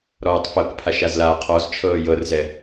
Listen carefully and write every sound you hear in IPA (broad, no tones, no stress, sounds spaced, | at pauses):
ɾ ɔː tˤ f ɤ k pʰ a ʃ a z l aː qʰ ɔ z t͡ʃʰ ɤː j ɤ r z ɛ